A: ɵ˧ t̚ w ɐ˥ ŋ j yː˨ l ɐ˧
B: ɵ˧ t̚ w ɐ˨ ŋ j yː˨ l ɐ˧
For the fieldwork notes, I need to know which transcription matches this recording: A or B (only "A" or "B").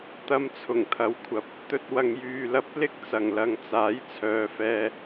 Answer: B